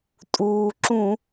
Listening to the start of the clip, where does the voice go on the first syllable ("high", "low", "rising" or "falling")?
low